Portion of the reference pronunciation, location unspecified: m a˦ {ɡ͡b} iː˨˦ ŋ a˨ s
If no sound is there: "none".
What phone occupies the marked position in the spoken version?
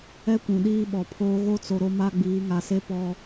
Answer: ɡ͡b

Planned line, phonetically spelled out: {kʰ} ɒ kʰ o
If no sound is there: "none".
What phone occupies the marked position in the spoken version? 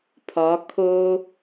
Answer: pʰ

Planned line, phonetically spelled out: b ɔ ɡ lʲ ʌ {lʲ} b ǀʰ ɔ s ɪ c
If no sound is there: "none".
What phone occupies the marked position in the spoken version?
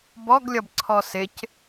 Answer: none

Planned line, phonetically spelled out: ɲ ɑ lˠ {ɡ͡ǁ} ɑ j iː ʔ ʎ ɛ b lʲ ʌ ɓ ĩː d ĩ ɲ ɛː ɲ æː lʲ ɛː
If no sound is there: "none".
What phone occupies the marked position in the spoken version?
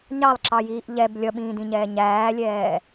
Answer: ǁ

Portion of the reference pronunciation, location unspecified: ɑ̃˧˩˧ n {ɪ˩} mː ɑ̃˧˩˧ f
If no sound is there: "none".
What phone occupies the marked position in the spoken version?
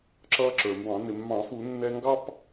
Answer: ɪ˩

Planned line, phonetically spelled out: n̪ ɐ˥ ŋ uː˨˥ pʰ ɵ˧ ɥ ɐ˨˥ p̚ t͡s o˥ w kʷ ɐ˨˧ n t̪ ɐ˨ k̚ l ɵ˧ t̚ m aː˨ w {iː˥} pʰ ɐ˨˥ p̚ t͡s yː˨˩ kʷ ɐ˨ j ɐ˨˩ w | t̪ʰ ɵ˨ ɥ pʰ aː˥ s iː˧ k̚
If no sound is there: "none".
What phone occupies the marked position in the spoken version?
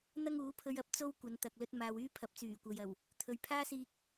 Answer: yː˥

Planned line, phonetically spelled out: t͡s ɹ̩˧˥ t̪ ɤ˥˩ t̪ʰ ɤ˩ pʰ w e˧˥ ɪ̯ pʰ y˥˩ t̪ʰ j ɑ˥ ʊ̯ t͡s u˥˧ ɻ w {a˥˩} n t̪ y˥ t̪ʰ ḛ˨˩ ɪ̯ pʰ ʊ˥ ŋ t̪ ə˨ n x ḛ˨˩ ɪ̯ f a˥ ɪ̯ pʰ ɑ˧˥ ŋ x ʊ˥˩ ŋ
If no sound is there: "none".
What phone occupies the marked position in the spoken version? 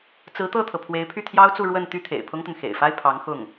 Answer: ə˥˩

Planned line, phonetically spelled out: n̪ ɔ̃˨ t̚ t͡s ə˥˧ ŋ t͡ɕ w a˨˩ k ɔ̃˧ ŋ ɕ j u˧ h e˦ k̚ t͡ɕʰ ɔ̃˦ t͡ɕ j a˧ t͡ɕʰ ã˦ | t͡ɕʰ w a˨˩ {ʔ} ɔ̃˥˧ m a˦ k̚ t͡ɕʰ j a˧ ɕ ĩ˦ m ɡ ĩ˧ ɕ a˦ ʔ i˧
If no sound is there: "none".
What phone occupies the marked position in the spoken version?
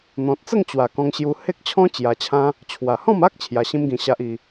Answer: h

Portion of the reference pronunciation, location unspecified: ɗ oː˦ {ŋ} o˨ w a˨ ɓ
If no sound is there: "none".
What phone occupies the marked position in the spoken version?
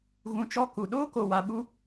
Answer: k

